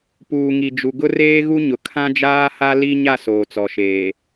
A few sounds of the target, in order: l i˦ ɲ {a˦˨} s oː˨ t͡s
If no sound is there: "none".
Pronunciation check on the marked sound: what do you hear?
a˦˨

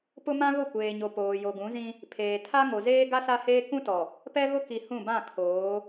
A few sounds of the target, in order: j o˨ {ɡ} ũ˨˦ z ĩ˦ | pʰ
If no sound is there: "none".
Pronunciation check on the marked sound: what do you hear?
ɡ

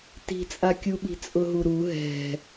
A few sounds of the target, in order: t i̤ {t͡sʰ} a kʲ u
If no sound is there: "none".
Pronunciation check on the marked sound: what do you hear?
t͡sʼ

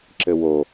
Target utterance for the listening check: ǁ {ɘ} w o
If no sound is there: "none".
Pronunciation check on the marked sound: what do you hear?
ɘ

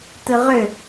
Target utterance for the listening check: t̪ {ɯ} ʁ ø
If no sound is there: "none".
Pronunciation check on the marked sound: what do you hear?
ɯ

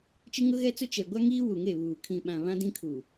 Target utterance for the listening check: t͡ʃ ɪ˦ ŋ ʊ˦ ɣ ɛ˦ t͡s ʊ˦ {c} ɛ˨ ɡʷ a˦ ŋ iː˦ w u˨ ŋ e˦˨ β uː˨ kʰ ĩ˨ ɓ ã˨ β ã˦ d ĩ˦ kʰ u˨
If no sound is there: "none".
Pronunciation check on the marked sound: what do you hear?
t͡ʃ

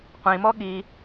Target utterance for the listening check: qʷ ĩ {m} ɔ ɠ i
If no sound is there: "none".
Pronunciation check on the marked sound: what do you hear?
m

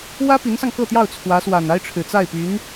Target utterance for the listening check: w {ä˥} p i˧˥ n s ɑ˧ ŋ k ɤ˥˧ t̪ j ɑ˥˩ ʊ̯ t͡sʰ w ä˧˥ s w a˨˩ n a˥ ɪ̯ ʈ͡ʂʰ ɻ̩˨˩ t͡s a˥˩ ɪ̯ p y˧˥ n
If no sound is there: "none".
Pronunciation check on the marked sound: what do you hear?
ä˥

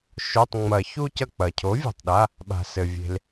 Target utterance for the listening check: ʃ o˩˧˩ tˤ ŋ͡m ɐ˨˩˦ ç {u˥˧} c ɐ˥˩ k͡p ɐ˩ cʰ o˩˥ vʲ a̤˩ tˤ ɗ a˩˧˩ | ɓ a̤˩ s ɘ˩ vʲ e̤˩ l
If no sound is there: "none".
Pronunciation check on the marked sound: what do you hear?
u˥˧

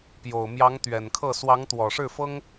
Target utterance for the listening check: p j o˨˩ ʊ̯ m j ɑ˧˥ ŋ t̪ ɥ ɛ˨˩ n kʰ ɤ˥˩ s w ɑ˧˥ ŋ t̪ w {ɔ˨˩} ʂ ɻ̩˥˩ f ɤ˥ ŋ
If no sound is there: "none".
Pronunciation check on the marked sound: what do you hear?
ɔ˨˩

